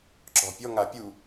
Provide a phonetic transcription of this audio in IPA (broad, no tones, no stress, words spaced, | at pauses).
ǁɔ̤pʲɔ ŋapʲu